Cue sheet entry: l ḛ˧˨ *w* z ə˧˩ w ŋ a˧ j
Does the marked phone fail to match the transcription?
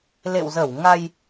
no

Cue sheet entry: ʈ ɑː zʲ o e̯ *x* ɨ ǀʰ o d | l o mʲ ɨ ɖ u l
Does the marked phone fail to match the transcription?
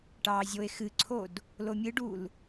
no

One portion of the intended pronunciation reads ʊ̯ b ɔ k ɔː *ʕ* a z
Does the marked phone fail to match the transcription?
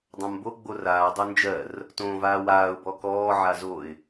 no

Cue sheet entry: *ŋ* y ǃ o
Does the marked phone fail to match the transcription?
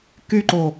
yes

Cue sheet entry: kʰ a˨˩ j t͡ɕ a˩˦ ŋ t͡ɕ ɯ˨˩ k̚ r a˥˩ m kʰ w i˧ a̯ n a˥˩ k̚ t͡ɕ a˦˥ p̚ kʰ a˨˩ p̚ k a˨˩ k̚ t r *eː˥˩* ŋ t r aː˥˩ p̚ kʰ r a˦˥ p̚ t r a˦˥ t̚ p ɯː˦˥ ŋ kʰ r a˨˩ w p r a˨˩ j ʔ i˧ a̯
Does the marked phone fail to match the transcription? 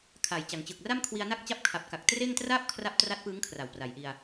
no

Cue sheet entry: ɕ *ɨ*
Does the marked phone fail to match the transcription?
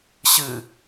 no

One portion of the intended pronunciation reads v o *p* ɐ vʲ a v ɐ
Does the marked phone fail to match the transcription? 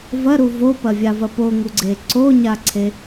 no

